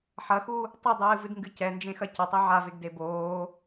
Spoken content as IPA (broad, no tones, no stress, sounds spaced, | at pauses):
ħ ɐ x u | tˤ ɘ dˤ ɨː v ɨ d ŋ ɡ ɨ c ɛ n d͡ʒ ẽ x ɐ c ɐ tˤ e ʕ a v e ɡ d e b oː